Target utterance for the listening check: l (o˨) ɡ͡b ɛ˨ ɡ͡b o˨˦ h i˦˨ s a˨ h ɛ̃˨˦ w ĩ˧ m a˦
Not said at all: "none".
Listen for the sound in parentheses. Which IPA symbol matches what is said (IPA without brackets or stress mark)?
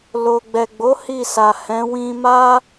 o˨